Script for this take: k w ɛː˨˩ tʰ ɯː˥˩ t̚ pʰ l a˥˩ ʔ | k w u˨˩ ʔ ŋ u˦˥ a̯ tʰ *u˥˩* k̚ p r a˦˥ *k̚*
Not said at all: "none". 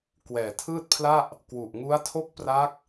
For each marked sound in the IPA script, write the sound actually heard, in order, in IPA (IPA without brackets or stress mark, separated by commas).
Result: o˥˩, k̚